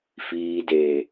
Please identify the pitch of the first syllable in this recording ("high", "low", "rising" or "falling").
low